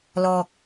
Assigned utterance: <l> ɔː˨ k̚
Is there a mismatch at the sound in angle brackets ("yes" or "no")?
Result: no